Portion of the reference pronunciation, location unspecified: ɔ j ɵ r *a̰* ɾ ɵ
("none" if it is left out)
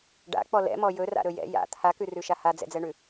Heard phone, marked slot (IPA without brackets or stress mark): a̰